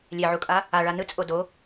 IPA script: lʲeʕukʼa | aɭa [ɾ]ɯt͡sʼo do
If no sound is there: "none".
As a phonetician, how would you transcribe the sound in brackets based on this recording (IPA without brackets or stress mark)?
n